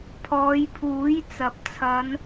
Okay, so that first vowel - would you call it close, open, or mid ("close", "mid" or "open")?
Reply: mid